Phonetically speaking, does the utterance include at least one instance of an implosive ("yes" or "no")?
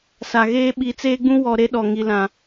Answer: yes